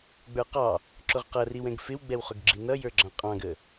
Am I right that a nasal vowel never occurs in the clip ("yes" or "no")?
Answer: no